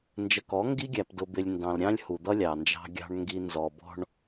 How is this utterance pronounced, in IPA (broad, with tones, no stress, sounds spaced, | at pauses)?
n d͡ʒ ə˨ k ɔ˨˦ ŋ ɡ i˦ ɡʲ æ˨ p d ʊ˨ b ɪ˨ lʲ n d ɑ̃˨ l ɾʲ ɑ̃˦ lʲ h u˨ d̪ ʌ˦ lʲ ɑ˨ n d͡ʒ ɑ̤˦ ɡʲ ɑ̤˦ ɳ ŋ ɡ i˨ n z ɔ˨ b ɔ̤˦ ɳ